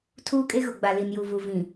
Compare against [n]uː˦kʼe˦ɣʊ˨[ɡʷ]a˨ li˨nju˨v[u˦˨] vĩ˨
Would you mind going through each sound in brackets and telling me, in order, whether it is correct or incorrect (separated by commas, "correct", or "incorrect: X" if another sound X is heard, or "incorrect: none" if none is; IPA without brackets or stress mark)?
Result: incorrect: tʰ, incorrect: ɡ͡b, incorrect: u˨